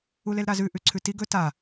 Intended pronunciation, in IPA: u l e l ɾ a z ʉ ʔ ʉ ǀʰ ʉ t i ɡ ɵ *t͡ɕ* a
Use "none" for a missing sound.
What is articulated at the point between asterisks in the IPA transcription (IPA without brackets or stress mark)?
t